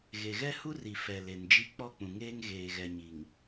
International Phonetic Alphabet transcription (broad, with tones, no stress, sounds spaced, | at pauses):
ɣ e˨ ɣ ɛ˦ h u˦ r i˨ f ɛ˨ l e˨ n d͡ʒ i˦ k͡p ɔ˦˨ k͡p ũ˨ ŋ eː˦ ŋ ɣ eː˨ ɣ ɛ˨ ɲ i˨ ŋ